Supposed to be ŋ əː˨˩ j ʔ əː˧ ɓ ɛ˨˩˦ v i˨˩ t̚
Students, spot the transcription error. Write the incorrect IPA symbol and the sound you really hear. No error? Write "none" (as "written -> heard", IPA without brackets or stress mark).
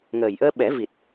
none